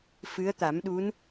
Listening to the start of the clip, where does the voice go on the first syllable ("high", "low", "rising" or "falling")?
rising